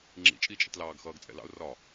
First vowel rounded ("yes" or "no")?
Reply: no